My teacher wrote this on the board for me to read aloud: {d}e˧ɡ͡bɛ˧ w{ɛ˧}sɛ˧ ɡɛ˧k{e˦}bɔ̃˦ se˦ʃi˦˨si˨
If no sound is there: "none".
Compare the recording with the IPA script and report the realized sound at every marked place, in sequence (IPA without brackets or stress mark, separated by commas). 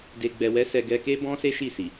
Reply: d, ɛ˦, e˦